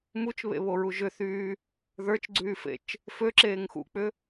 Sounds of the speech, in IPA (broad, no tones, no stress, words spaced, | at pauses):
mut͡ʃβḛβoɹu ʒʏθyː | ðə˞t͡ʃɡ͡ǀyːfḛt͡ʃ | føǁeːŋ xṵk͡pʏ